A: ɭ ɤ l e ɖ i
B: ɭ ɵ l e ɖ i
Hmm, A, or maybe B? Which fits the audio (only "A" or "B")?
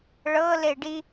A